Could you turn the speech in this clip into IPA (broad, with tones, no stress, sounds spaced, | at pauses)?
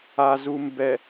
a˨ z u˨ m b ɛ˨